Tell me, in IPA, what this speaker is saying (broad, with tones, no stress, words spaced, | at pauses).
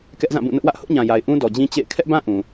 kɛ˦ʔzã˦˨bũ˦˨ nʊ˦ʔwä˦ʔ hʊ˦ʔɲã˨ja˨ɪ̯ ʔũ˦dɔ˨d͡ʑĩ˦ t͡ɕḛ˦˨ɪ̯ kʰɛ˦ʔbã˦ ʔũ˨